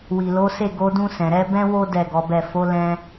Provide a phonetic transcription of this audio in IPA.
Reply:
w i˨ l o˨˦ s e˦˨ ɡ o˨˦ d ũ˧ s ɛ̃˨ ɾ ɛ˨˦ b ɛ̃˦ w o˦ d ɛ˦˨ ɡ ɔ˨˦ b ɛ˦˨ f o˨˦ l ɛ̃˧

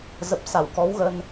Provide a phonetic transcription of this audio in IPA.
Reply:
z ə˨˩ p̚ s a˧˩ w k ɔ˨˦ w ɣ ə˧ n

